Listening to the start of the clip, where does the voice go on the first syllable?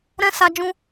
high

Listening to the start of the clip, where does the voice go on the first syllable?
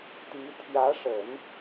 rising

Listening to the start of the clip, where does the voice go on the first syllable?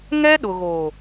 high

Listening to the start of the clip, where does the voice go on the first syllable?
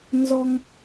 high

